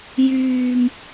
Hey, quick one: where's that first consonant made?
palate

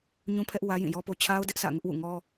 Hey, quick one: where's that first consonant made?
palate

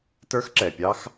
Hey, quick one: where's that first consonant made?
tongue tip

